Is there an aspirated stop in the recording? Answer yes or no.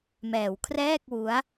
yes